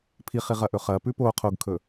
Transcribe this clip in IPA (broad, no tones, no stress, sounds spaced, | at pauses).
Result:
pʰ i χ i ʁ ɐ ʔ ɵ χ ɐ p ʉ p o qʰ o ɡ kʰ ɵ